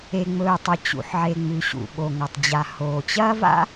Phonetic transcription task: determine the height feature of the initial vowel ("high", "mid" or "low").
mid